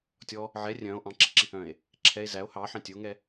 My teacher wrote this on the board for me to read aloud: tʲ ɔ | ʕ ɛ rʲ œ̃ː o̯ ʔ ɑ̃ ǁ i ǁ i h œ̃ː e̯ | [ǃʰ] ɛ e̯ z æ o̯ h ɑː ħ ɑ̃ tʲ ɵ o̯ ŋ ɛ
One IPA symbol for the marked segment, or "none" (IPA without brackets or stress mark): ǁʰ